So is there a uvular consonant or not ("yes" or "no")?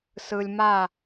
no